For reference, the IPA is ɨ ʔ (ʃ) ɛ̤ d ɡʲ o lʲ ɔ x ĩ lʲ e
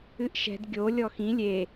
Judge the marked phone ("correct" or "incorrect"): correct